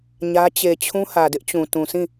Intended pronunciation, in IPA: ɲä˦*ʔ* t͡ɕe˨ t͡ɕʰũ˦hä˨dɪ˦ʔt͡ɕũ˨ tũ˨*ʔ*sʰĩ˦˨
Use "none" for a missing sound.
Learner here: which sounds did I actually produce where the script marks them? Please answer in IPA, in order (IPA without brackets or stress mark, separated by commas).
none, none